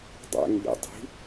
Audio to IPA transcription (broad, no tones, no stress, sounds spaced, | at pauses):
dˤ æ̰ ŋ ʎ ḭ dˤ i̤